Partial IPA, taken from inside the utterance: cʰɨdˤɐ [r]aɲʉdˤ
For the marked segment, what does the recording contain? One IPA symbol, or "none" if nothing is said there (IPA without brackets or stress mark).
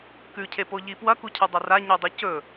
r